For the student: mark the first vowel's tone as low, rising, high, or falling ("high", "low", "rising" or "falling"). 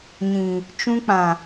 low